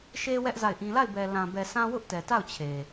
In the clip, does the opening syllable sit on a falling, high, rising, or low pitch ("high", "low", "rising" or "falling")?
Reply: high